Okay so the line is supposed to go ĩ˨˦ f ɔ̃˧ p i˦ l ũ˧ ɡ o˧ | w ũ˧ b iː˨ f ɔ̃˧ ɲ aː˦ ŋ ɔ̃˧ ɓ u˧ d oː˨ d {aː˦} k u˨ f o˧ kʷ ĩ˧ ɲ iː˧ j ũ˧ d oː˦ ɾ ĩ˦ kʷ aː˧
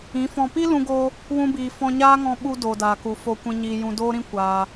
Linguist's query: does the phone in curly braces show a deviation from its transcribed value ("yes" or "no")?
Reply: yes